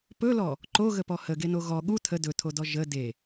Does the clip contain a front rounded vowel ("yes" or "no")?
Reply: no